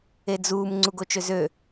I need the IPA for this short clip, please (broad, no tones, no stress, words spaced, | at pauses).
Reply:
ed͡zuːm ŋ͡ǀuɡot͡ʃøzø